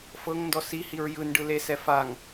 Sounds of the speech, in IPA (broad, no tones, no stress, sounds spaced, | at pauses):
f ɤ ŋ n d ɔ s i h i ɹ j ɯ n ɖ ɯ l e s ɛ f a ŋ